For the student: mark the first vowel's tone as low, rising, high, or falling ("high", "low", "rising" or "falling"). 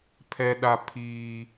low